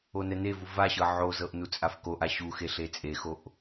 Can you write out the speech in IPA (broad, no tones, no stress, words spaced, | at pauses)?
onɛnevu vaɕɤ ʕozɤʔ nut͡sʼafkoʔa ɕuxe ɬet͡sʼexoʔ